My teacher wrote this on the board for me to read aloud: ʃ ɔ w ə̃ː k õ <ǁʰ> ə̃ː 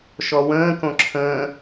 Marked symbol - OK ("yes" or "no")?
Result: yes